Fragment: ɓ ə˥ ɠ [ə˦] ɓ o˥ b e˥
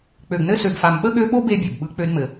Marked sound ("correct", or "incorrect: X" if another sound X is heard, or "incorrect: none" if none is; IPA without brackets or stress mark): incorrect: ø˦